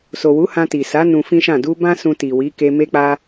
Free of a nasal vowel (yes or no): no